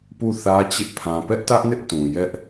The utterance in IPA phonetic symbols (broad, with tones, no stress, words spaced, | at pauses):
pu˦˨θä˦t͡ɕɪ˦ʔ pʰã˨pɛ˦ʔtä˦ʔnɪ˦ʔ tũ˨jɛ˦ʔ